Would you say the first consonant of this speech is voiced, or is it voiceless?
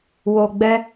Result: voiced